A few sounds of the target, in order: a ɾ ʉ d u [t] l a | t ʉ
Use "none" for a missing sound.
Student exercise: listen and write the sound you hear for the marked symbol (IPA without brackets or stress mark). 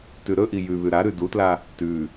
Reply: t